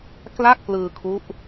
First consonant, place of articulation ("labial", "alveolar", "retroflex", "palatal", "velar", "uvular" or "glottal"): velar